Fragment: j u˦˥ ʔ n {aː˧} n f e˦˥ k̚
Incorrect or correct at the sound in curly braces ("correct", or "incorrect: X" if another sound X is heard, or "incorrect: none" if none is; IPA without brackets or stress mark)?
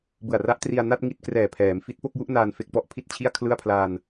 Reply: correct